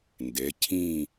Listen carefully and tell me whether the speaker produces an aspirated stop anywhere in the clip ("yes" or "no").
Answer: yes